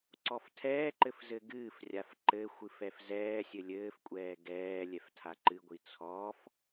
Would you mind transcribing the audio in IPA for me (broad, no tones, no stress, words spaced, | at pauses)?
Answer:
ǀɔftʰɛːǃɘf zɘɡɨːfrʲaf ǃɘ xʷɨfɛfzɛːsʲɘ lʲɘːfkʷʼɛː ɡɛː lʲɛftʰaǃɨɡʷi t͡sʰɔːf